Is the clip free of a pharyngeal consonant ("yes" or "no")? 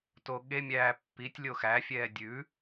yes